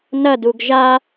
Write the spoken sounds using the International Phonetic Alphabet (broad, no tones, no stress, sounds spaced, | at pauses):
n ɐ d u ɡ ʒ a